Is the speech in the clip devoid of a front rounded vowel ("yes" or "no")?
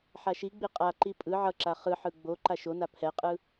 yes